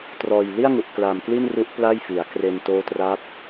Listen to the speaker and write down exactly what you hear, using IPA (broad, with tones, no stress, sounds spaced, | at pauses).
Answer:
t r ɔː˨˩ j l i˥˩ a̯ ŋ u˨˩ ʔ k l a˨˩ m k l i˥˩ n r u˦˥ ʔ p l a˥˩ j f i˩˦ a̯ k r e˧ n t oː˦˥ t r a˦˥ p̚